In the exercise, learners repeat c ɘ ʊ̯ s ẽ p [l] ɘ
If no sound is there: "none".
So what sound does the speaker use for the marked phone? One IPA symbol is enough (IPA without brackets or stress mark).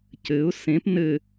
n